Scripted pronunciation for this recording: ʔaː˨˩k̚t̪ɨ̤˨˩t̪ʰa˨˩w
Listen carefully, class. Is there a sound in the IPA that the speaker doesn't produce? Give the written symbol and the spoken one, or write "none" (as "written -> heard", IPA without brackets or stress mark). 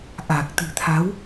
a˨˩ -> a˨˦